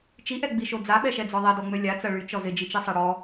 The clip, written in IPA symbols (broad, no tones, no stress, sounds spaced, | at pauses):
t͡ʃ i ʔ ɛ ɡ͡b i ʃ o d͡z a ɓ ɛ ʃ ɛ d͡z ɔ ðˤ ɛ d ɔ ŋ͡m ø lʲ a t͡s ɐ ɭ y t͡ʃ ɔ z ɪ d͡ʒ i t͡ʃ i sˤ ɛ ɽ ɔ